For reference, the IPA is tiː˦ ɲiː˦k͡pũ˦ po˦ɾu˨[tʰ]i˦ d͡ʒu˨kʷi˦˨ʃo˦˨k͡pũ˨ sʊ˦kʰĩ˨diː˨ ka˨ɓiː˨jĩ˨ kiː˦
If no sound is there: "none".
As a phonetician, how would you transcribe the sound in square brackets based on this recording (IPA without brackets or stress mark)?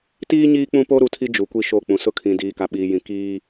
tʰ